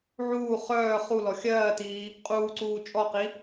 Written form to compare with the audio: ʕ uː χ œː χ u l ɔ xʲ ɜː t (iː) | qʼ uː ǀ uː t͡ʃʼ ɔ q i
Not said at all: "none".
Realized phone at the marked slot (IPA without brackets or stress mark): iː